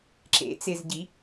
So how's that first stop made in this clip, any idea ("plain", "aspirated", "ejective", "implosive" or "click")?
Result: click